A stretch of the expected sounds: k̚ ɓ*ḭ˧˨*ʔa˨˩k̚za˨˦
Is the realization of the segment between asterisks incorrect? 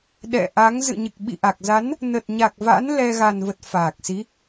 no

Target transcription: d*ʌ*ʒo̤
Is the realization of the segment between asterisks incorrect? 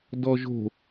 yes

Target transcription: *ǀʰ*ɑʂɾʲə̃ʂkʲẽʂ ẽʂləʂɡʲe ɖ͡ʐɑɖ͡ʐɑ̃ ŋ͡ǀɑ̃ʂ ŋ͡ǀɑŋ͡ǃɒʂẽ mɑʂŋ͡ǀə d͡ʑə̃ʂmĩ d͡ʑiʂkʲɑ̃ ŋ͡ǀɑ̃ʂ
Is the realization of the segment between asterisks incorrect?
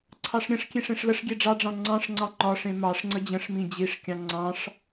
no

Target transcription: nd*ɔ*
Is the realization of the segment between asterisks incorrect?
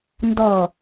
no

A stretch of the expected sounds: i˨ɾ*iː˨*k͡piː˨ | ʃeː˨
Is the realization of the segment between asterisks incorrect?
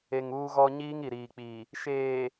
no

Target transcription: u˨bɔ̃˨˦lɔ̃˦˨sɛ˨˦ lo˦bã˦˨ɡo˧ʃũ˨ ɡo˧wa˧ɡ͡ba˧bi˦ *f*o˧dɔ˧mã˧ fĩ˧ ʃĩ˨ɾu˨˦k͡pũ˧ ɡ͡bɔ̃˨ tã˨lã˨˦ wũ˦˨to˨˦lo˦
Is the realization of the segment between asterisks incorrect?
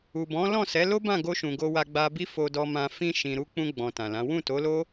no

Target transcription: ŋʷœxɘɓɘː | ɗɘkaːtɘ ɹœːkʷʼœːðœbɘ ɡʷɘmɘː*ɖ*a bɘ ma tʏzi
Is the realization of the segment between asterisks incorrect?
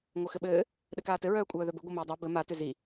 yes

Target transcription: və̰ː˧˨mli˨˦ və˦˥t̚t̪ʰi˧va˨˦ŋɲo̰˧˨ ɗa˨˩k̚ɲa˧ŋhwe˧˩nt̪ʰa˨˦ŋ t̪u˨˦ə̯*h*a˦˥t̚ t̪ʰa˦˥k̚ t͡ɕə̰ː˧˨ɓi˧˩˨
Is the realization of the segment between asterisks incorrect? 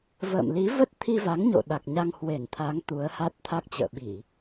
no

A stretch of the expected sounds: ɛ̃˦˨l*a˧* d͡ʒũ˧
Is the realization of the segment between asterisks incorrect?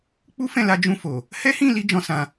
no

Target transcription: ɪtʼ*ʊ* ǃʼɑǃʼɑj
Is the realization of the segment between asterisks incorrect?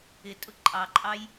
no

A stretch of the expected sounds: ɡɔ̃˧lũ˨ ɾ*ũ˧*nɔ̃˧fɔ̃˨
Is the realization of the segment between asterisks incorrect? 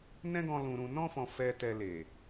yes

